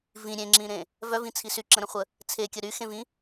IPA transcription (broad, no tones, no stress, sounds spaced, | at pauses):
v ĩ ɾʲ ẽ ŋ͡ǁ ĩ ɾ ẽ | v œ v ĩ t͡sʰ i s y ǁ ə̃ ɾ ə̃ χʷ ə | t͡sʰ e kʲ ə ɾ y x ẽ v ĩ